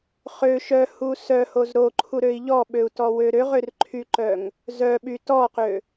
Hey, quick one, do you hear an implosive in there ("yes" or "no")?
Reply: yes